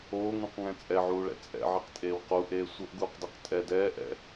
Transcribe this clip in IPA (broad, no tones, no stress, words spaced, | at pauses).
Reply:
oːŋũqŋɛ̃ t͡sʼɛʕuːɭɛ̰ t͡sʼɛ̰ʕeqtʼeːw quʔeː sʷʌʔɡuːqdeq tʼɛ dɛːʔɛ̰